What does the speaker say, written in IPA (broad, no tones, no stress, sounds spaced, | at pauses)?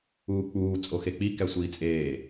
uː k͡p uː t͡sʼ o x e k͡p i k æ sʷ iː t͡sʼ eː